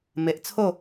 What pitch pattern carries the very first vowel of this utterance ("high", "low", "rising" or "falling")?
low